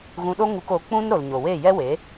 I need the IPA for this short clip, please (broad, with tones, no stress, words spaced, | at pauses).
ɣũ˧ɗo˦ŋu˧k o˨˦k͡pũ˦n ɾo˨l ɲo˨we˦˨jɛ˦we˨˦